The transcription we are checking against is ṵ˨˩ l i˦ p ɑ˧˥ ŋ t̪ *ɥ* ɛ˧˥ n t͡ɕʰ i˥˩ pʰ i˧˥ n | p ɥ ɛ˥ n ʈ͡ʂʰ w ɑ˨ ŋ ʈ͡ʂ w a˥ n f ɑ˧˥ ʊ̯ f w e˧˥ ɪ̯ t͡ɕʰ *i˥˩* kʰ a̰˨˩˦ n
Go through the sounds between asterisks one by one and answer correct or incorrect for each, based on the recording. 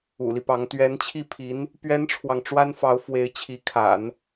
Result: correct, incorrect: i˧˥

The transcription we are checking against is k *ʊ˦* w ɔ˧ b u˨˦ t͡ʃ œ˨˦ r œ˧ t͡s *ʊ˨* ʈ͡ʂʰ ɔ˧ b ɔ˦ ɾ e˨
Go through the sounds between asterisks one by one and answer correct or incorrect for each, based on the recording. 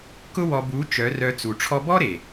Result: correct, incorrect: u˨

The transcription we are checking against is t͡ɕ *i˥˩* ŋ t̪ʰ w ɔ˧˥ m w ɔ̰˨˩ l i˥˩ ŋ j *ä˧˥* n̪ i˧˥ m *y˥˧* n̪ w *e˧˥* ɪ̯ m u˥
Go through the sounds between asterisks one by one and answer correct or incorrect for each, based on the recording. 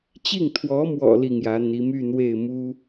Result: correct, correct, correct, incorrect: e˥˩

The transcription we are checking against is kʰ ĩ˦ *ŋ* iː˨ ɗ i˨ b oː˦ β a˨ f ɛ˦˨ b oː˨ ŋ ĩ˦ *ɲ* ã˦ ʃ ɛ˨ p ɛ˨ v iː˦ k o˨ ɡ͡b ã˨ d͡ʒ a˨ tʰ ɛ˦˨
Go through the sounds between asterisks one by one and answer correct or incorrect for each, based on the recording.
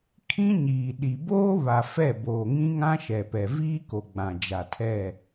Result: incorrect: ɲ, incorrect: ŋ

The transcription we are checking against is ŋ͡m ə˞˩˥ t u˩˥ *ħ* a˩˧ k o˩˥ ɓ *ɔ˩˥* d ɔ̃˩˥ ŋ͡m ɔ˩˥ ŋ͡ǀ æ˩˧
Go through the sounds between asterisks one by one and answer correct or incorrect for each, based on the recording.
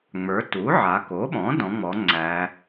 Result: incorrect: ʕ, incorrect: ɔ̃˩˥

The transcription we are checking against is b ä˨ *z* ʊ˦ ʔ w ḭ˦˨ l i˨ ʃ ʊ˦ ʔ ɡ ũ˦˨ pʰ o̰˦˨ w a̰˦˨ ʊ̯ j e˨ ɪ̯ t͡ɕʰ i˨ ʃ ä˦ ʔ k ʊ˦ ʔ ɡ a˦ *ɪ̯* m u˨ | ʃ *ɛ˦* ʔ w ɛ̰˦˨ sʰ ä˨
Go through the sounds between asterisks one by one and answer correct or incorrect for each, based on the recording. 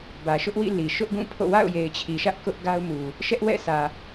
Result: incorrect: ʃ, incorrect: ʊ̯, correct

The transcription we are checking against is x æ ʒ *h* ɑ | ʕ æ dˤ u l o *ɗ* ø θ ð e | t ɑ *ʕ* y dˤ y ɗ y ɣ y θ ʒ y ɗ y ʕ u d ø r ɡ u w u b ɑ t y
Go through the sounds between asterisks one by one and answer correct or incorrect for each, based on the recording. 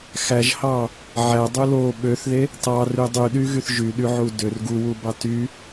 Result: correct, incorrect: ɓ, incorrect: r

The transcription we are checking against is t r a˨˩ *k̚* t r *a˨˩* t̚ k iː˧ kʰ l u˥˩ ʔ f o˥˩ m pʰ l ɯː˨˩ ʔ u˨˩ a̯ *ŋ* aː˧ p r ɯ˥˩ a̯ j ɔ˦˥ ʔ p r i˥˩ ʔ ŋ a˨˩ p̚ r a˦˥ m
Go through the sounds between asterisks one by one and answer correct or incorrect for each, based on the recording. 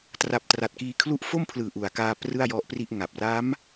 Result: incorrect: p̚, correct, incorrect: k

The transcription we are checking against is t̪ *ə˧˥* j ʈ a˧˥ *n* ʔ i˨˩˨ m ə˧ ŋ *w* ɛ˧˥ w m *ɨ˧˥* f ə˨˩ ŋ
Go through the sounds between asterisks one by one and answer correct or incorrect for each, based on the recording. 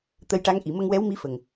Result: incorrect: ə˧, incorrect: ŋ, correct, incorrect: i˧˥

